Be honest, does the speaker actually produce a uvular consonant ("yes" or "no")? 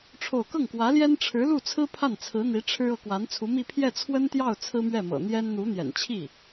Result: no